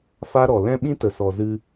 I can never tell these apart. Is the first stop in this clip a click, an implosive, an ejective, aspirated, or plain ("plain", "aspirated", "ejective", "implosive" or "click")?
implosive